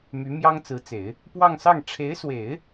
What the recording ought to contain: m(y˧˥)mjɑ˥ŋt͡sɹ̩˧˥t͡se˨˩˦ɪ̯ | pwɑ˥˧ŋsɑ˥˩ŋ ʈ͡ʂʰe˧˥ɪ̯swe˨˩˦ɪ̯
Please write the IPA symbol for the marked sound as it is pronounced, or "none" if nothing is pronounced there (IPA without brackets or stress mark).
y˧˥